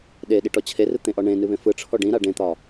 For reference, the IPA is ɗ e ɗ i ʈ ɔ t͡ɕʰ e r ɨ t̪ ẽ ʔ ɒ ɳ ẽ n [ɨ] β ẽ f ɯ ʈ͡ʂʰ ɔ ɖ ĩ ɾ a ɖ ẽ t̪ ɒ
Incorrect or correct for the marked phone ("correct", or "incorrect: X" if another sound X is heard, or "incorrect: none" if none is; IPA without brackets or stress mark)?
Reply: correct